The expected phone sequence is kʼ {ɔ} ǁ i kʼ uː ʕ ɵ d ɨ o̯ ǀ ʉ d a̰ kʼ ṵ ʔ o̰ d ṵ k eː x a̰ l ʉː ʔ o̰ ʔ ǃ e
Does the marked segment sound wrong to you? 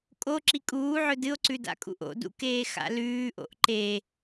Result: yes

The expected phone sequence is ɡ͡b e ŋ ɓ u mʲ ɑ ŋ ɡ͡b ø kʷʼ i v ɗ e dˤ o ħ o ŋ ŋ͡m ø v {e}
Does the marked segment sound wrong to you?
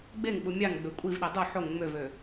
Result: yes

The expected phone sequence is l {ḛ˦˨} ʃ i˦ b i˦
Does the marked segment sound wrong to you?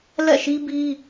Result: yes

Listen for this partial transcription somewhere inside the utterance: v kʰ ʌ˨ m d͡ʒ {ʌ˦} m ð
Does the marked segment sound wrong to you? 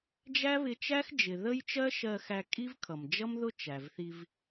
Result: no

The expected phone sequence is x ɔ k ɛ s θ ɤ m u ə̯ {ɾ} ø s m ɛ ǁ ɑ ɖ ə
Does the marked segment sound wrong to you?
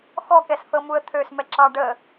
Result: yes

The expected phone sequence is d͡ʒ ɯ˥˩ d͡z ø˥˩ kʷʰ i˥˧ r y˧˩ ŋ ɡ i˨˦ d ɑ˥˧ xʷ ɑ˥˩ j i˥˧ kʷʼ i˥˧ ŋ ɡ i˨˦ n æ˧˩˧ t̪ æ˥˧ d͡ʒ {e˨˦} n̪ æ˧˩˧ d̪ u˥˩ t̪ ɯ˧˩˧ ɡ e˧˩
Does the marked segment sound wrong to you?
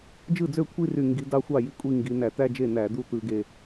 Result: yes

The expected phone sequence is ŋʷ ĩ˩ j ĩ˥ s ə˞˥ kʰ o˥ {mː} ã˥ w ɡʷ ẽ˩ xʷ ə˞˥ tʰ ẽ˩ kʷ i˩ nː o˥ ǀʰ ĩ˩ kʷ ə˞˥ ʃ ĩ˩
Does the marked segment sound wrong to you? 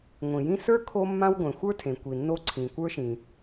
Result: no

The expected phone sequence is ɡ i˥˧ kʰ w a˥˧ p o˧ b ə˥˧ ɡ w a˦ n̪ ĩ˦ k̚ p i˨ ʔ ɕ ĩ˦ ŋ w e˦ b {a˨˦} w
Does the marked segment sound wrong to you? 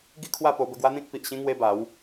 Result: no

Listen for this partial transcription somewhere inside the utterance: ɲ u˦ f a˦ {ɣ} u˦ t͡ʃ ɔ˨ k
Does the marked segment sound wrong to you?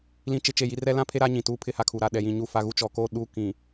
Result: no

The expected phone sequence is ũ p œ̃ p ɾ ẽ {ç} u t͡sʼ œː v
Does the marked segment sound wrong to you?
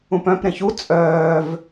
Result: no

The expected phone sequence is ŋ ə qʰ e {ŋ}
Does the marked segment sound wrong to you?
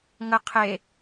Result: yes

